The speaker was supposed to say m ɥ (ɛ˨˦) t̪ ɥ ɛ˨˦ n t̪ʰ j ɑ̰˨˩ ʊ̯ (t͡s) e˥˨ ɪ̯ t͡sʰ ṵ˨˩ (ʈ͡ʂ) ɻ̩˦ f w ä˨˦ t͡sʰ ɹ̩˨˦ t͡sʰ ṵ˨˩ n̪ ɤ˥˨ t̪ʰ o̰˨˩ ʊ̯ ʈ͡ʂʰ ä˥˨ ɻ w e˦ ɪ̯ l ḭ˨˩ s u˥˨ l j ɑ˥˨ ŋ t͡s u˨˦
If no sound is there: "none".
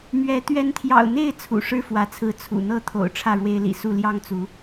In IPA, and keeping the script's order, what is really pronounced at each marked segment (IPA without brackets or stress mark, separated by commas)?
ɛ˨˦, n̪, ʂ